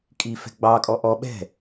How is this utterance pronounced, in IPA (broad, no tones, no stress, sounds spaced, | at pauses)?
kʼ i f ɛ̤ ɡ͡b ɑ kʼ ɔ ʔ ɔ ɓ ɛ̤